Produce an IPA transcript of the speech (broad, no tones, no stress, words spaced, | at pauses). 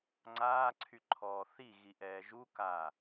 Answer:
ŋ͡ǀaːǀʰyǃʰɔː θiɣiʔɛː ʒuka